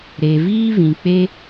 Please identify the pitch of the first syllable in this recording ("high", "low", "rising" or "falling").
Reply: low